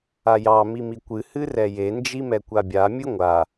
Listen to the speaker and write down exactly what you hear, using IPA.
a j ɑ m i m i kʷ ɨ h ɨ r ɛ j e n d͡ʒ i m ɛ kʷ a bʲ a mʲ ɨ ŋʷ a

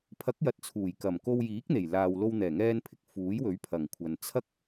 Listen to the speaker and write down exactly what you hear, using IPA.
pʰ ɐ˨˥ k̚ j ɐ˨ t̚ t͡sʰ uː˨˩ j k ɐ˨˩ m k o˧ w j iː˨˥ k̚ n̪ e˨˩ j l aː˨ w l o˧ w n̪ ɛː˨˩ ŋ ɛː˧ n pʰ ɪ˨ k̚ f uː˨˥ j w ɵ˨˥ ɥ pʰ ɐ˨˩ ŋ kʷʰ ɐ˨ n t͡sʰ ɐ˥ k̚

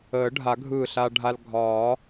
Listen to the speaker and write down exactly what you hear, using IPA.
əː˨˩˦ ɖʱ a˨˩˦ ɡʱ ɯː˧˩ ɬ a˧ ɖʱ a˧ l ɡʱ ɒː˨˩˦

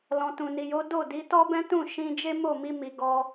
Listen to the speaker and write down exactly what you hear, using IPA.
l ɔ̃˨ t ũ˨ n i˨ j o˨˦ d o˦˨ d i˨˦ t ɔ˦ b ɛ̃˦ t ũ˦˨ ʃ ĩ˧ d͡ʒ e˦ m o˦˨ m i˧ m i˨ ɡ ɔ˧

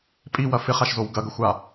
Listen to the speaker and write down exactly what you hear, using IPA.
pʼ i w ɐ f ɪ χ a ʃ z o w ɡ ɐ ɡ ə xʷ a

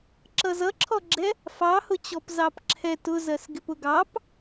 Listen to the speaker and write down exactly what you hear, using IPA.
ǁ ʌ z ʌ ǁʰ ɔ ɡ͡ǁ ɛ | f ɑ h ʊ t͡ɕ ɔ p z ɑ p ǁʰ ɛ t ʊ z ɜ s ɡ ɪ p ʊ ɡ ɑ p

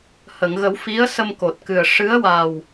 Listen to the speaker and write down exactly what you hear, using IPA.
h ə˨˩˨ ŋ ɣ ə˨˩˦ w f i˧˥ ə̯ s ə˧ m k o˨˩ t̚ k ɨ˨˩ ə̯ ʂ ɨ˧˥ ə̯ w a˨˩ w

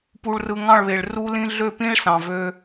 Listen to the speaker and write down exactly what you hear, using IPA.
p u˨ ɭ r ɯ˨ ŋ ɑ̃˦˨ ɭ β e˨ ɭ r u˦ l ĩ˦ ɮ ø˦˨ p ĩ˦ ɭ s ɑ̃˨ v ø˧

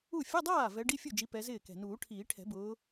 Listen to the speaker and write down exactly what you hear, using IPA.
u˥˩ fʲ ʊ˧˥˧ dˤ aː˥˩ v ɛ˨˦ ɖ i˧˥˧ fʲ u˥˩ d͡ʒ i˨˦ p ɛ˨˦ z ɪː˥˩ k ɛ̤˨˩ n uː˨˩˦ ʈʰ iː˨˩˦ ʈʰ ɛ̤˨˩˦ b ʊː˨˦

